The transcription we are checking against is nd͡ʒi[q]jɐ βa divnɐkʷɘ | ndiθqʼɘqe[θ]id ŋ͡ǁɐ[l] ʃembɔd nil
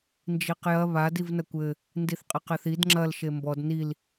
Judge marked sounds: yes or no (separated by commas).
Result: yes, yes, yes